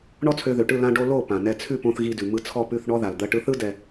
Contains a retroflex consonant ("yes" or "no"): yes